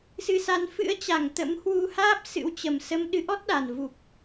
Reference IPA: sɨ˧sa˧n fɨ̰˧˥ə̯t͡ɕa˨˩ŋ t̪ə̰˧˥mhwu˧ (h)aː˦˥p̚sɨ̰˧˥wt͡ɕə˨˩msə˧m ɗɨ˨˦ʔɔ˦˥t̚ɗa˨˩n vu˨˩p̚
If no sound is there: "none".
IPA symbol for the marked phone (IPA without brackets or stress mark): h